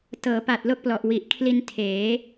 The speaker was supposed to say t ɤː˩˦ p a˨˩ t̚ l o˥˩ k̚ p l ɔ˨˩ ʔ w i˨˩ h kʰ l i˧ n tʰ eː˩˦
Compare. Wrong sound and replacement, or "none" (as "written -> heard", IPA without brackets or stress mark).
h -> ʔ